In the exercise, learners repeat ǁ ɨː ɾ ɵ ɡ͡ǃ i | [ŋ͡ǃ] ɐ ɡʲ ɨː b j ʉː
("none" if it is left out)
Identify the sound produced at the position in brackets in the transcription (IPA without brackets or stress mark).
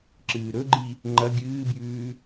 ŋ͡ǃ